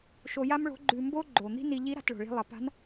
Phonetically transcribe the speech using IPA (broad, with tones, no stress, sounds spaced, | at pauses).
ʃ o˧ j a˥ m ɭ o̤˧˥ ɡ͡ǃ ʉ˧ m b o˥ ɡ͡ǃ o˩ n̪ i̤˥ n i˧ ʎ i˧˥ ɾ a̤˩˧ t ɭ o̤˩ ɭ i̤˧ lˠ ɐ˩˧ p a̤˧˥ n